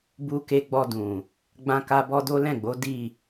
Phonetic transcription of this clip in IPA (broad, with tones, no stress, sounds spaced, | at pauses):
b u˧ k e˧ ɡ͡b ɔ˧ d ũ˨ | ɡ͡b ã˧ k a˧ b ɔ˦ d o˦ l ɛ̃˦˨ ɡ͡b o˨˦ d i˦˨